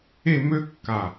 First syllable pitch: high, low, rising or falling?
falling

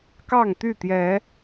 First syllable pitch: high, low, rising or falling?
falling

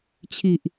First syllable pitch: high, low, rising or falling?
low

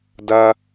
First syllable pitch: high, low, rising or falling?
high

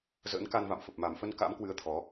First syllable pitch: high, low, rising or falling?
rising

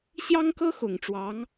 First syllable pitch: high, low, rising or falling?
high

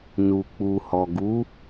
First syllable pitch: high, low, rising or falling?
low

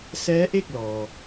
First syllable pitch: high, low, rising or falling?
rising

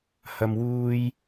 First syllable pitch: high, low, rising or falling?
low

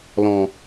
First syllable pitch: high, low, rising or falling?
low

